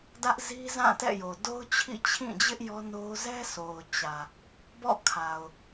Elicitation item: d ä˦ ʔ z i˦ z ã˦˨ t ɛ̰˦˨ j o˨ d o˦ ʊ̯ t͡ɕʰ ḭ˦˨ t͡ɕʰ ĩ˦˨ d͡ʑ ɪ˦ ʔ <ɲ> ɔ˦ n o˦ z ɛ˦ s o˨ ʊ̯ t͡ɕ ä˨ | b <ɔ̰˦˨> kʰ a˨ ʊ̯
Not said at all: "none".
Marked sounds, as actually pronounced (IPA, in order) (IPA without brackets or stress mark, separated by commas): j, ɔ̰˦˨